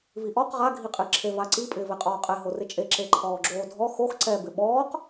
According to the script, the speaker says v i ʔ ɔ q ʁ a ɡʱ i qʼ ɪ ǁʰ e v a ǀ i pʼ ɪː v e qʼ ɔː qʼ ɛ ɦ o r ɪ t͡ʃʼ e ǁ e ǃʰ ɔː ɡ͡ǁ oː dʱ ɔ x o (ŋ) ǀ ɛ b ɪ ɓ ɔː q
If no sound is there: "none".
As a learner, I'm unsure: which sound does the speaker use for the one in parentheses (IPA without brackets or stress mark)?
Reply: x